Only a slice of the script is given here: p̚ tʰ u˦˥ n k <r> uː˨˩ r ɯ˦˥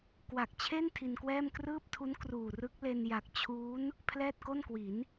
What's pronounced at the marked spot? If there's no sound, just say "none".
r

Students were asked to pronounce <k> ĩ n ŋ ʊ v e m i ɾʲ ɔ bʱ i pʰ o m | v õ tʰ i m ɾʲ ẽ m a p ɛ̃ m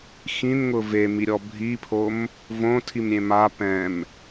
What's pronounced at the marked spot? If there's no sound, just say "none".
x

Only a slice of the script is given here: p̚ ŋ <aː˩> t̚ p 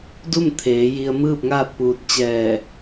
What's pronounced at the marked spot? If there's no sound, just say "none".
aː˥˨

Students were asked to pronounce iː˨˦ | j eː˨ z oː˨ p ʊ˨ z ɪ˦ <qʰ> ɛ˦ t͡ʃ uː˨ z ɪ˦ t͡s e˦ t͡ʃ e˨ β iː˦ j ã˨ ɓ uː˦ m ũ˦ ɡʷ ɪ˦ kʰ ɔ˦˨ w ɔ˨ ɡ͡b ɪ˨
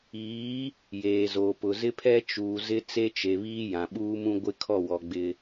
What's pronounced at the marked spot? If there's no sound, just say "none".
pʰ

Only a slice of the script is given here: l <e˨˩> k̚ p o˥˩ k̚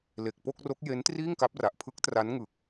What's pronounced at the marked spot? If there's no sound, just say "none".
e˨˩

